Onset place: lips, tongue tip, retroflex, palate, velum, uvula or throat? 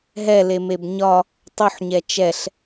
throat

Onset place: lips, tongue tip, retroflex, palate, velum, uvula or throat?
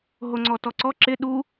throat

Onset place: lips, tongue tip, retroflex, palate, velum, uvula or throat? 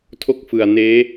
tongue tip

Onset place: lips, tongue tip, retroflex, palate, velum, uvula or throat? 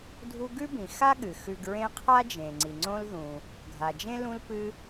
tongue tip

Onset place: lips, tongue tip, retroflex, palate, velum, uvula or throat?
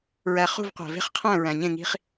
tongue tip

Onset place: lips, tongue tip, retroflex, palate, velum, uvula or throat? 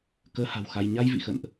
velum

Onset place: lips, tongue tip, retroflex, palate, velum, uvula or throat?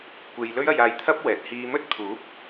velum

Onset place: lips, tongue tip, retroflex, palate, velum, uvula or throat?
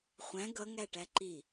uvula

